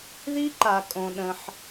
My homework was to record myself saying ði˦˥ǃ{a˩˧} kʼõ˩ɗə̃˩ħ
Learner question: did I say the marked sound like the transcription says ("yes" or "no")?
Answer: no